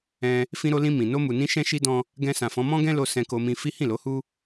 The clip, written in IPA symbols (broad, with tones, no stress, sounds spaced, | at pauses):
ɛ̃˧ | f ĩ˧ ɾ o˧ l ĩ˧ m ĩ˨ n o˧ m u˨ n ĩ˧ ʃ ɛ̃˦ ʃ i˦ d ɔ̃˦ | ɡ ɛ̃˧ s ã˨ f ɔ̃˨˦ m ɔ̃˦ ɡ ɛ̃˦ l o˧ s ɛ̃˧ k o˧ m ĩ˧ f i˦ h ĩ˦˨ l o˨˦ h u˦